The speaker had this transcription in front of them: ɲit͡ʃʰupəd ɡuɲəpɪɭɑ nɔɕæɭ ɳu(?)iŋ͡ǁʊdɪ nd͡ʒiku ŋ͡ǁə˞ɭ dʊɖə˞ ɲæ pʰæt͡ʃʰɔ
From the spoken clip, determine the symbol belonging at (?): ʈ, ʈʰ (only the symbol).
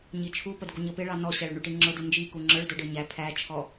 ʈ